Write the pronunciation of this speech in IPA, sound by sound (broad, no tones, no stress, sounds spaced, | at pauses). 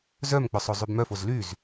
z œ m k͡p œ sˤ o zˤ y b m œ f o z l y z